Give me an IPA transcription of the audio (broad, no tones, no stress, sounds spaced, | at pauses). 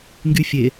ŋ ɡ y fʲ e